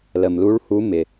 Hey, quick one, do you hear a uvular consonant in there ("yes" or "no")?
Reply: no